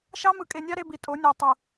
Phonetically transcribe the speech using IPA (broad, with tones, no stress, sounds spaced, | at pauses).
ʃ ɑ˦ m ɯ˨ kʼ e˨ nʲ ɑ˦ ɾ e˦ b i˨ tʼ o˨˦ nʲ æ˨ tˤ u˨